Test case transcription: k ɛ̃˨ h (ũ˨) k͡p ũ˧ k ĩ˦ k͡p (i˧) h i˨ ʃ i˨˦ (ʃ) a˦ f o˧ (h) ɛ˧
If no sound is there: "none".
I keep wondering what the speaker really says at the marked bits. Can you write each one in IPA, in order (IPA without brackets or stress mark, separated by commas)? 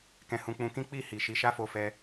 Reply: ũ˨, i˦˨, ʃ, f